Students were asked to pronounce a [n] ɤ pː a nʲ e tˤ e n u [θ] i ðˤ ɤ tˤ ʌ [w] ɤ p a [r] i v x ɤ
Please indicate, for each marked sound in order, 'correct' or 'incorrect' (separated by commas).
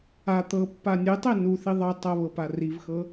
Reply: incorrect, correct, incorrect, correct